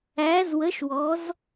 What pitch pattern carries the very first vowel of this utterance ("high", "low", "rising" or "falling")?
rising